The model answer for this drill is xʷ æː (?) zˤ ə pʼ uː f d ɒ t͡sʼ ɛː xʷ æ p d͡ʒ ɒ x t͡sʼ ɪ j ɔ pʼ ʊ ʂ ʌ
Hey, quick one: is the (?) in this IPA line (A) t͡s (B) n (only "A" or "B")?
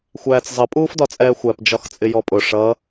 A